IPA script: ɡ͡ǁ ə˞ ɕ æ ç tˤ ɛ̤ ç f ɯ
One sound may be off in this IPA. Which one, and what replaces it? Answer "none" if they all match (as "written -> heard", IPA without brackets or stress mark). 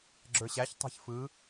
none